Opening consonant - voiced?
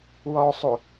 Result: yes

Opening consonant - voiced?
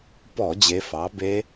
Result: no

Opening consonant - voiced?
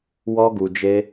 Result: yes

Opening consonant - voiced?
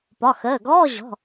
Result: no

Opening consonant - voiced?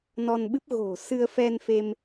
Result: yes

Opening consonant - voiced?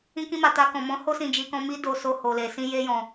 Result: no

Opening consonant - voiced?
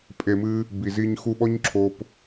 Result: no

